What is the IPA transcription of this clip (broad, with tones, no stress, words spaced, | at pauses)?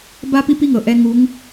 ba˥ pi˥pi˥ŋɤ˩˧ ʔɛ˧˥ŋu˧˥ŋ